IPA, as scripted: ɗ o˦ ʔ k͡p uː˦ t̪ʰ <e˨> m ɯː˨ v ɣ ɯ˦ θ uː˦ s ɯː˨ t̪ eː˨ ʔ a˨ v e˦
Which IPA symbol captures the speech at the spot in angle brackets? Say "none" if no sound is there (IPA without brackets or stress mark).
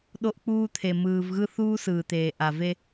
e˨